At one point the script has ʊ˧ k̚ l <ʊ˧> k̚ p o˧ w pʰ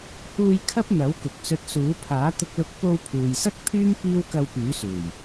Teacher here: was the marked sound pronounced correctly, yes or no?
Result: yes